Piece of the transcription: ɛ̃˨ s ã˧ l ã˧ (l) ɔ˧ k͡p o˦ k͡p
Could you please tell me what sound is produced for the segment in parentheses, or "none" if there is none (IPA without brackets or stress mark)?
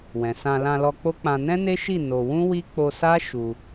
l